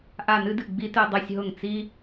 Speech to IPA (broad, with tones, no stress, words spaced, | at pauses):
ʔa˥˧nɨ˥dɨ˥˩ ɡ͡bi˥tɨ˥˧ dˤɨ˥˩sʲɦʊ˥˩ŋ t͡si˥